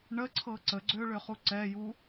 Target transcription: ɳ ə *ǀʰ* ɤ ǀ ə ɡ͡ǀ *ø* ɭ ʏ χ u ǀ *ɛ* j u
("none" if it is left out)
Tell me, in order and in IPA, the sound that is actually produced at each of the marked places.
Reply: ǀʰ, ø, ɛ

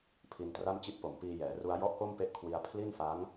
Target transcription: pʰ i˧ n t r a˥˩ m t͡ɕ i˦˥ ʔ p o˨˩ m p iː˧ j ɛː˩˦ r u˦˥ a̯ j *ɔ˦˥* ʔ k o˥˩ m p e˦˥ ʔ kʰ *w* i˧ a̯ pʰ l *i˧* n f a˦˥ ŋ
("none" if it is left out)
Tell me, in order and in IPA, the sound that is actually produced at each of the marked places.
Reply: ɔ˥˩, w, i˥˩

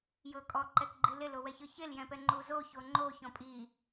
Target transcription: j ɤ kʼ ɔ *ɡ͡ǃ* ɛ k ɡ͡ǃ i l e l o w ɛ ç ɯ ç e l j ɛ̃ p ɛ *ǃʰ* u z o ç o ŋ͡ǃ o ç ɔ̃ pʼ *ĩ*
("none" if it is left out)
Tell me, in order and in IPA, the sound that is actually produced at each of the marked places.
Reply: ǃ, ŋ͡ǃ, i

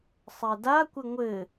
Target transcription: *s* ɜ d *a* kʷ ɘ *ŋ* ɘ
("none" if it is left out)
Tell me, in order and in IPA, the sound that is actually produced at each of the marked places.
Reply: sˤ, a, ŋʷ

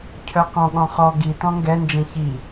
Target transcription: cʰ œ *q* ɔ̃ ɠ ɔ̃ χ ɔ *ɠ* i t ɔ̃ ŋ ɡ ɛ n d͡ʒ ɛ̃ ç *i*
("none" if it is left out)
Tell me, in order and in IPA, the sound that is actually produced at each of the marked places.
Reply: q, ɡ, i

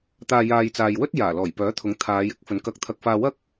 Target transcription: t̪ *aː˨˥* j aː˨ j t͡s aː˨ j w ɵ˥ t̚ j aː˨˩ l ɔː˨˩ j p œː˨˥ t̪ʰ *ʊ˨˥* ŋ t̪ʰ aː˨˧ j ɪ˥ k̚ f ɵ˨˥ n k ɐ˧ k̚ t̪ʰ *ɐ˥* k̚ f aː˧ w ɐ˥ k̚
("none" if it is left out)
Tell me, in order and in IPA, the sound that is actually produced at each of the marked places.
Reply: aː˨, ʊ˨˥, ɐ˧

